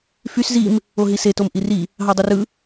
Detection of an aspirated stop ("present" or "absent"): absent